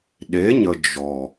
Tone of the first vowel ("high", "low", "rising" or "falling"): rising